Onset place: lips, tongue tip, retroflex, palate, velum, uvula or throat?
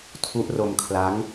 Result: tongue tip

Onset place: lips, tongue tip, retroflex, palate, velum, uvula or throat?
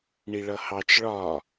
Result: retroflex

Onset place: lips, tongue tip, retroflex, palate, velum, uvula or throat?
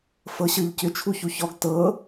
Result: lips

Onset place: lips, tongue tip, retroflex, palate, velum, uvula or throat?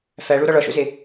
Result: lips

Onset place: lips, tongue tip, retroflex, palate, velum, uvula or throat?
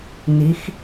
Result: tongue tip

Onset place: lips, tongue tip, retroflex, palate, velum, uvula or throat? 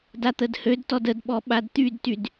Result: tongue tip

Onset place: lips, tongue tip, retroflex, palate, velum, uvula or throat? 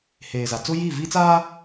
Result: throat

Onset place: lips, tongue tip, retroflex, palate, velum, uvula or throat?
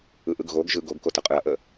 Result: throat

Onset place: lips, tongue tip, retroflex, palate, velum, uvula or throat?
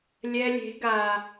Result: tongue tip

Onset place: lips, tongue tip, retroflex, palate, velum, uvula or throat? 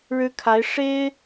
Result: retroflex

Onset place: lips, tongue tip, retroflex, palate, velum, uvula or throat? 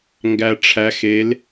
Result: velum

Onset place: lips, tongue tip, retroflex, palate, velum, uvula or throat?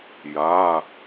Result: palate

